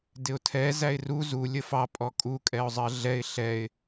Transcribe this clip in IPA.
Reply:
d ɪ ʊ̯ tʰ ɛ z æ ɪ̯ r u z u lʲ ə f ɑ pʼ ɔ kʼ u kʼ ɛ ʊ̯ zˤ ɜ ɮ ɛ ɪ̯ ɬ ɛ ɪ̯

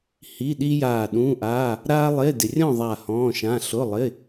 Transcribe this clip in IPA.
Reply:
h i˧˥˧ ɗ i˥ j aː˦˨ ɗ ũː˧˥˧ ʔ aː˧˥˧ | ɾ aː˥ lˠ e˧˥˧ d ɪ˨ rʲ ɔ̃˦˨ ðˤ a˦˨ h ɔ̃ː˧˥˧ ʃ ã˧˥˧ ɬ ʊ˧˥˧ lˠ ɪ˧˥˧

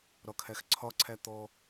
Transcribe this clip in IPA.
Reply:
ɾ ɒ kʰ æ x ǀʰ ɒ ǀʰ æ t̪ ɔ

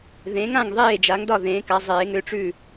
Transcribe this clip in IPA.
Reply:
ð ẽ˩˥ ŋ ã˥˩ ŋ ðˤ eː˥˩ d͡ʒ a˩˥ ŋ d ɒ˥˩ ð ẽː˩˥ k a˩˥ zˤ eː˩˥ ŋ ʏ˥˩ ʈ͡ʂ ʉ˥˩

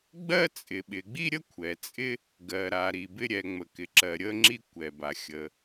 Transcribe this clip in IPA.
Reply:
ɡ͡b ɜ˥ t͡sʼ ɪ˩ ɓ ɪ˩ ɡ͡b i˥ ɾʲ ə˥ kʷʰ ɛ˩ t͡sʼ ɪ˥ | ɡ ɜ˩ ɾ a˩ ɾ i˩ b ɪ˥ ɾʲ ɛ˩ ŋ͡m ə˩ k ɪ˩ ǁ ɜ˩ ɾʲ ə˥ ŋ͡ǁ i˥ kʷ ɛ˩ b a˩ xʲ ə˩

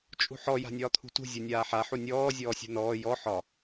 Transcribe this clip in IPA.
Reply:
t͡ʃʼ ṳ ħ ɔ j a̤ nʲ ɒː t̪ʰ ṳ t ṳ zʲ u nʲ aː ħ a ħ u nʲ ɔː zʲ ɔː sʲ ṳ n ɔː j ɔ ħ ɒ

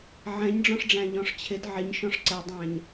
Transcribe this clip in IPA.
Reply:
ʕ ɛ̃ ɲ ɖ͡ʐ ɔ̃ ʂ ɖ͡ʐ æ̃ ʎ ɔ̃ ʂ t͡ɕʰ ɪ d ʕ ɪ ɲ ʃ ɔ̃ ʂ ǀ ɛ dˤ æ̃ ɲ

